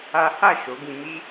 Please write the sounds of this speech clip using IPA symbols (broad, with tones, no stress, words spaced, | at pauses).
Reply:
a˦ ha˦˨ ʃo˨˦ɡĩ˧mi˦